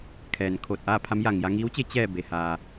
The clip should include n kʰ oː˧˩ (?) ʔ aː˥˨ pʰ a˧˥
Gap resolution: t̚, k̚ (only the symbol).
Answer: t̚